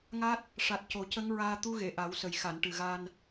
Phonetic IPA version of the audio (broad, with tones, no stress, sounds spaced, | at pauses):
ŋ a˦˥ t̚ | ʂ a˨˩ t̚ c o˨˩ c ə˧˥ ŋ ɹ aː˧ t̪ u˧˥ ɣ e˨˩˨ ʔ a˨˩˦ w s ə˨˩ j x a˨˩˨ n ʈ ɨ˨˩ ɣ a˧ n